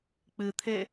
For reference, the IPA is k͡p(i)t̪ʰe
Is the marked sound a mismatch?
yes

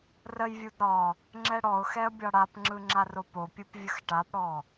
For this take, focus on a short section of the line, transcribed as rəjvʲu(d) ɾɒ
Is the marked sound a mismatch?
no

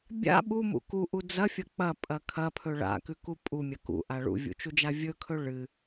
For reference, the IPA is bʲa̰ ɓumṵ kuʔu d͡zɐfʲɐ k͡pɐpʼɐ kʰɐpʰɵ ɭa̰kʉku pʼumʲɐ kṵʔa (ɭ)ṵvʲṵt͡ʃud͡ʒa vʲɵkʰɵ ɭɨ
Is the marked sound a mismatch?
no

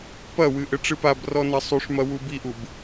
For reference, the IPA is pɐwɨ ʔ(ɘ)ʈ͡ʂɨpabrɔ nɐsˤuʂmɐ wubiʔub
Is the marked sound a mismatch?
no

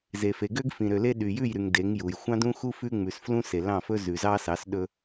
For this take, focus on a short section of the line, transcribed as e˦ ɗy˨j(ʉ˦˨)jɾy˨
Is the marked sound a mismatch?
no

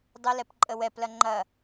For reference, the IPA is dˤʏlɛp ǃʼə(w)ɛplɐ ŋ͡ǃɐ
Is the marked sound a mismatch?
no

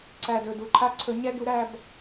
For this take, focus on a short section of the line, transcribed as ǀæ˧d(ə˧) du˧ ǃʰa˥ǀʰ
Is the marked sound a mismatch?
yes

